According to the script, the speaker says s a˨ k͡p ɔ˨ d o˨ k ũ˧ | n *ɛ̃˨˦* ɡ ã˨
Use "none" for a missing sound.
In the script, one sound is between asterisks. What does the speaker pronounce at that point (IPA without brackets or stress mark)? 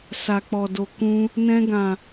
ɛ̃˧